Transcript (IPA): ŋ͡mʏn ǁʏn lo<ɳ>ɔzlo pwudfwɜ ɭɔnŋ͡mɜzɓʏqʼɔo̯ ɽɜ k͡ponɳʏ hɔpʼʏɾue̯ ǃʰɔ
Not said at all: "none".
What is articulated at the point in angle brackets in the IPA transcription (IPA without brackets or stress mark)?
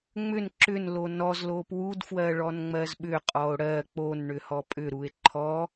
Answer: n